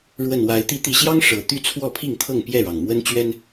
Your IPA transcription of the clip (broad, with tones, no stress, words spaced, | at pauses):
ɻwə˨˩n wa˨˦ɪ̯ t̪i˨˦t̪i˨˩ɕjɑ˦ŋ ʂɤ˨˩ t̪y˥˨t͡sʰwɔ˥˨pʰi˥˨ŋt̪ʰɤ˥˨ŋ pjɛ˥˨ɻɑ˩ŋ mwə˦nt͡ɕɥɛ˦n